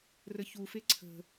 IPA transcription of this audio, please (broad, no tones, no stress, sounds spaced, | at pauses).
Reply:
r ə ç u f e ǀʰ ə̤